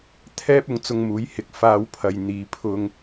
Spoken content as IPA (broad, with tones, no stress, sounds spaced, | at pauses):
t̪ʰ ɛː˥ p̚ ʊ˨˥ ŋ t͡s ʊ˧ ŋ m uː˨˥ j h ɪ˨˥ k̚ f aː˧ w pʰ ɐ˨ j n̪ iː˨˧ pʰ ʊ˧ ŋ